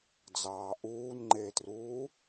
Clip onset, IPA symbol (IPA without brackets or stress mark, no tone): d͡z